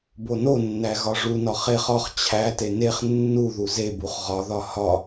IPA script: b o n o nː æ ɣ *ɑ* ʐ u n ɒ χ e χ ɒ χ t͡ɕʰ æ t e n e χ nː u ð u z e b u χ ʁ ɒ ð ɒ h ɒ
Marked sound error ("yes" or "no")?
yes